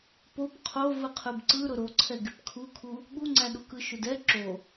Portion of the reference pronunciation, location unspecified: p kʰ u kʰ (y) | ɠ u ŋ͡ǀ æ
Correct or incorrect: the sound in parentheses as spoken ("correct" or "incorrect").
incorrect